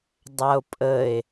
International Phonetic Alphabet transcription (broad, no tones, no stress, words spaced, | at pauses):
dˤao̯pʼəe̯